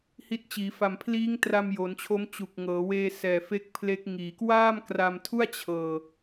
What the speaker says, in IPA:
h i˦˥ t̚ t͡ɕ iː˩˦ f a˨˩ m pʰ l iː˦˥ ŋ t r a˧ m j o˩˦ n t͡ɕʰ o˦˥ m t͡ɕ u˨˩ k̚ ŋ ɤː˩˦ w eː˧ s ɛː˨˩ f e˦˥ k̚ pʰ l e˦˥ k̚ ŋ iː˩˦ k w aː˥˩ m k r a˧ m tʰ u˥˩ a̯ t͡ɕʰ ɤː˧

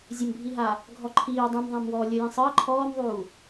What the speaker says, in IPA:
zʲ ə m bʱ i ɦ a | ɡʱ ɔ ǃʰ iː dˤ ũ m ðˤ ã m w ɔː lʲ ə j ĩ sˤ əː ǃʰ ɔː m ðˤ uː

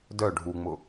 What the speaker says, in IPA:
d œ ɖʱ u ŋ͡m ʊ

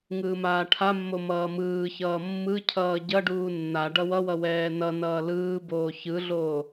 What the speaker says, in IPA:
ŋ ɯː m aː ʈʰ a mː o m ʌː m ɯː ç ʌː mː ɯ cʰ ʌː ɟ ʌ ɖ uː nː a ɖ ʌ w ʌ w ʌ w ɛː n ʌ n ʌː l ɯː b oː ç ɯ ɮ oː

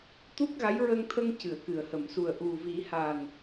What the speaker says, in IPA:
t̪ u˦˥ k̚ ɣ a˧˥ j ɹ ə˧ ŋ t̪ʰ ə˧ ŋ c ɨ˨˩˨ ə̯ k ɨ˨˩˨ ə̯ h ə˨˩˨ m s u˨˩ ə̯ ʔ u˨˩ v i˨˩˦ h a˨˩ n

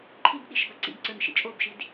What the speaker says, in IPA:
ǃʰ i b ɗ i ʃ b a ǀ ḭ ɡ ǀ ə˞ n ʃ ḭ t͡ʃʼ o b ʃ i d

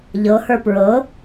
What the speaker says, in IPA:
ʎ ɤ h ə˞ p ɹ ɤ

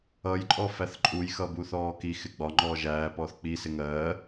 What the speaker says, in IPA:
ʌ j ǃʼ ɔ f æ θ ǃʼ u j x ʌ b u θ ɔː k i x ɪ ɡ͡b ɒ ŋ͡ǃ ɔː ʒ æː p ɔː θ k͡p i s ɪ ŋ ɜː

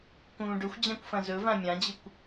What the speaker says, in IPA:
k ũː ɖ ɵ xʷ d͡ʑ ã kʷ f ɐ̃ z ɵ v ã mʲ ã d͡ʑ ɨ kʷ

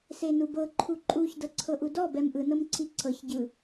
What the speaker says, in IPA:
s e n u b ɤ ǃʰ u ǃʼ u ç d ɤ ǀʰ ɤ ʔ u d ɔ b ɛ m ʔ ɯ n ɤ m ǀʰ i ǀʰ ɤ ç ɟ ɯ

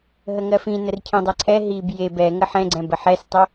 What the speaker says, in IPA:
ɦ ə ŋ ɜ f ĩ n ə r cʰ ĩ dˤ ɛ ǀʰ ɛ ɦ i b j e b ɛ ŋ ə ħ ɛ̃ ɡ͡ǀ ɛ̃ b ə ħ ɛ s tˤ ə

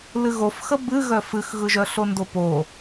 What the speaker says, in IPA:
l ɨ ɣ o f x ə b ɨ ɣ œ f ɨ x ɣ ɯ ʒ œ ɬ o n d o p o

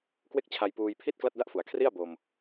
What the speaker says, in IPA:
k w e˥˩ k̚ t͡ɕʰ a˧ j p uː˧ j pʰ i˥˩ t̚ k l a˥˩ t̚ d a˥˩ ʔ f u˩˦ a̯ kʰ r i˥˩ a̯ b o˧ m

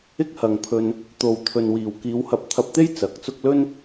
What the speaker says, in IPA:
ɪ˥ k̚ h ɐ˨ ŋ pʰ ɵ˧ n | t̪ o˨ w t̪ʰ ɵ˨ n w iː˨˩ w k iː˨˧ w h ɐ˧ p̚ t̪ʰ ɐ˧ p̚ t̪ e˥ j t͡s ɐ˨˥ k̚ t͡s ʊ˥ k̚ l ɵ˥ n

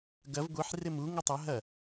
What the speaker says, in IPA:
ɡ ɐ v ɡʷ i ħ r e m u ŋ ʉ tˤ ɐ ɦ ɐ

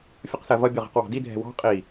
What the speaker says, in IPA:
fʲ ʊ q s ɜ v ʌ bʲ ʊ ʁ ɛ̤ q w ɑ̤ d i dʱ ɛ̤ w ɑ̤ qʼ i

